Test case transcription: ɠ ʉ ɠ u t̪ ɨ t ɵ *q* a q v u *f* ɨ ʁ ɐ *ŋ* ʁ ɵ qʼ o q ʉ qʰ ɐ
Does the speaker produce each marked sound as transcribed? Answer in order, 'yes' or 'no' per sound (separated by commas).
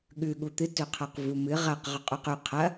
no, no, no